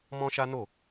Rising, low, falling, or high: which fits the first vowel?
high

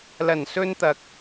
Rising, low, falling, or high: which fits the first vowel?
low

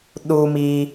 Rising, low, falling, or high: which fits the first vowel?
low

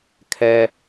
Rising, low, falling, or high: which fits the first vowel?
high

